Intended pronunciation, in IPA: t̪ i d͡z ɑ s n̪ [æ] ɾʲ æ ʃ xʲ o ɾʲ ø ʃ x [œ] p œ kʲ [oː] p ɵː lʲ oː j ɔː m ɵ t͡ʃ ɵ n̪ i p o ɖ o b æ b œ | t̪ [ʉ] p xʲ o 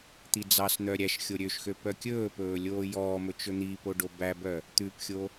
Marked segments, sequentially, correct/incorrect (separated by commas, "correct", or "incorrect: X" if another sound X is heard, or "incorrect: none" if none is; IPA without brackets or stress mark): incorrect: œ, incorrect: ø, incorrect: ɵː, correct